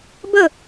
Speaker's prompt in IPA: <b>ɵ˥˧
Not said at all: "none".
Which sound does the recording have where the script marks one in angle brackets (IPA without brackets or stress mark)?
b